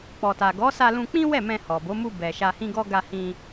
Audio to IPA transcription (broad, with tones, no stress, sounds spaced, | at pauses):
k͡p ɔ˨ t a˨ ɡ ɔ˨˦ s a˧ l ũ˧ k͡p ĩ˦ w ɛ˦˨ m ɛ̃˧ h ɔ˨ b o˨˦ m u˧ b ɛ˨ ʃ a˧ h ĩ˦ ɡ ɔ˦ ɡ a˧ h ĩ˧